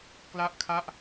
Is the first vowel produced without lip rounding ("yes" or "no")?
yes